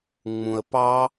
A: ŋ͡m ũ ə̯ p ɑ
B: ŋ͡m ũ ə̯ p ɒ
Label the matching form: A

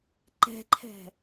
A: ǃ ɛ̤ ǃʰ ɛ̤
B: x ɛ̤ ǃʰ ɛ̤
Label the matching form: A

